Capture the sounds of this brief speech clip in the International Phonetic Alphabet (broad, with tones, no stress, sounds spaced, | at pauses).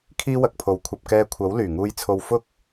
kʰ iː˥ w ɐ˧ k̚ pʰ o˨ w kʷʰ ɐ˨ p̚ k ɛː˧ kʷʰ ɐ˨˥ w l yː˨˩ ŋ uː˧ j t͡sʰ o˧ w f ʊ˥ k̚